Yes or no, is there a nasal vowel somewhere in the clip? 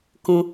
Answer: yes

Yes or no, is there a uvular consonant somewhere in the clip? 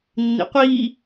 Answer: yes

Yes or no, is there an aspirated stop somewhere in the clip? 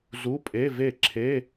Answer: yes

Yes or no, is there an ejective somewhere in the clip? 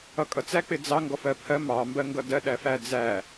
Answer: yes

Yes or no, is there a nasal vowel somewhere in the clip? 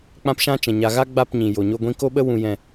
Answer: yes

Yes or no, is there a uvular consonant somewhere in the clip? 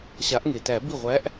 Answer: yes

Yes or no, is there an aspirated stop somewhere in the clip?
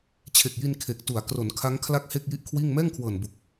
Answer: yes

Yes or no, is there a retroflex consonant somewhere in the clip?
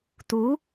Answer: no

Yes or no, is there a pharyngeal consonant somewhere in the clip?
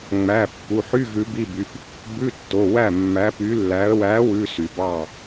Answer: yes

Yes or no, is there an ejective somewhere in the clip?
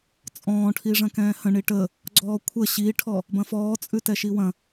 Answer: yes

